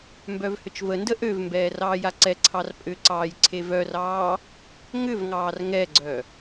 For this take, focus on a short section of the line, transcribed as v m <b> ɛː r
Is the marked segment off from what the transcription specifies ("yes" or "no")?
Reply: no